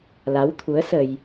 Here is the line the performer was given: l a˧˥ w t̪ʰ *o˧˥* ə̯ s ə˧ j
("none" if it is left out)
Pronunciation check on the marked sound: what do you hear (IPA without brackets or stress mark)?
u˧˥